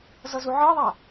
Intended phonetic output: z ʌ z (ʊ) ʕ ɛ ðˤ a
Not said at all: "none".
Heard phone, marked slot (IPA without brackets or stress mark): u